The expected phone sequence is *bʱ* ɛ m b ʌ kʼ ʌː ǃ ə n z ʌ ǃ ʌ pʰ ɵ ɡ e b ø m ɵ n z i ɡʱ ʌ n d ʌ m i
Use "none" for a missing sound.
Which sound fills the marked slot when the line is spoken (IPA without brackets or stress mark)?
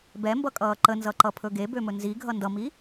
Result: b